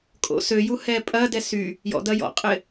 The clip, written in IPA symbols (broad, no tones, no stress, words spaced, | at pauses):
kʼo̰søju hɛpʼɐdɛ sy | jɔ̰dɐ jɔ̰qʼɪ